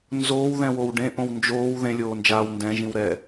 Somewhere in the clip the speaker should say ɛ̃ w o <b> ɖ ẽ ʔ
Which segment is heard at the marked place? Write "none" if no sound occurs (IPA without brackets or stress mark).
w